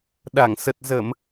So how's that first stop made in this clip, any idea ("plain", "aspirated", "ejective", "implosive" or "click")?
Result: implosive